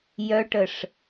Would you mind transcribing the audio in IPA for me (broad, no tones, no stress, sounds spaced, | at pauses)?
j œ ʈ ə ʂ